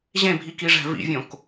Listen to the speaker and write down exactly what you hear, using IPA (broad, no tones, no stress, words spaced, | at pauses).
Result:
ʑẽbʱikiʐæ̤ vḭvʲõk